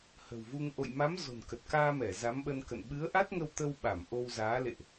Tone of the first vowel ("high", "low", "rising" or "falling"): low